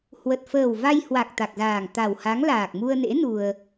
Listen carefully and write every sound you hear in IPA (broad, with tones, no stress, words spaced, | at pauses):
hwə˨˩t̚fəː˨˩w va˧jhwa˨˩k̚ t̪a˨˩k̚zaː˨˩ŋt̪a˨˩wha˨˦ŋ laː˨˩k̚mu˧ə̯nḛ˧˥ nu˧ə̯